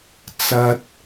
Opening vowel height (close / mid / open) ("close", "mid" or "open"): open